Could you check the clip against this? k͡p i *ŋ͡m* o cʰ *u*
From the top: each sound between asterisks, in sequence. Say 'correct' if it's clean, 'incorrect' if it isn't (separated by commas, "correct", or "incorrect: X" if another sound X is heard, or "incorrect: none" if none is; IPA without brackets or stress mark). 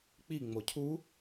correct, correct